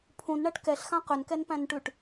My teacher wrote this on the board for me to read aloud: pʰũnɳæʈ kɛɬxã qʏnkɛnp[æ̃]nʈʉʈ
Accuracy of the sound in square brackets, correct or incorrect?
correct